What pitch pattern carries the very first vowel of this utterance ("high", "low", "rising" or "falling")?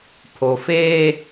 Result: low